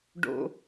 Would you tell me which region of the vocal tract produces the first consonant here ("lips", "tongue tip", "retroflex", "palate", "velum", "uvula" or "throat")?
retroflex